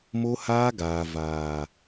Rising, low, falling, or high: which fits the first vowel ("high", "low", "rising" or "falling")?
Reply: high